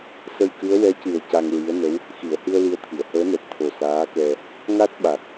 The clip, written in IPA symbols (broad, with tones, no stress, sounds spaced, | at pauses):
s ə˧ j k ɨ˧˥ ə̯ w ɛ˧˥ c ɨ˨˩ ə̯ c a˧ ŋ ɹ i˧˥ ə̯ n ə˧˥ w | x i˨˩˨ ə̯ h ɨ˧ ə̯ l i˧˥ ə̯ t̪ʰ i˨˩˨ ə̯ h əː˧˥ n ɛ˨˩ t̚ t̪ʰ o˨˩ s aː˧˥ k ɛ˧ | ŋ a˦˥ t̚ ɓ a˨˩ k̚